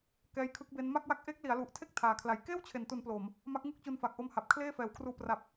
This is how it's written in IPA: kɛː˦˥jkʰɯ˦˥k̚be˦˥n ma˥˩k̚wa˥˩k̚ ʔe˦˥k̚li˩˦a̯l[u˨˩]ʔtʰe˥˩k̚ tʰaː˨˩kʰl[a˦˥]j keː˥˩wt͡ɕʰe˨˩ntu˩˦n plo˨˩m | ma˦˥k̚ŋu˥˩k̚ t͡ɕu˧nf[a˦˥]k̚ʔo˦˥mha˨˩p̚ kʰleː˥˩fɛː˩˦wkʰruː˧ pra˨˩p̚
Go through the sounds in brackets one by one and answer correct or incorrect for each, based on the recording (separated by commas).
correct, incorrect, incorrect